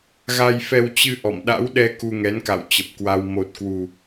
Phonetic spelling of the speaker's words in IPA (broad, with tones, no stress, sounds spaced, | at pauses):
ɣ a˧ j f ɛ˧ w t͡ɕ ɨ˧ ʔ ɔ̰˧˨ m ɗ a̰˧˥ w ɗ ɛ˧ k u˧ ŋ ɛ˨˦ n k a̰˧˨ w t͡ɕ ə˨˩ p̚ k w a˧ w m o˨˩ t̚ k w u˨˩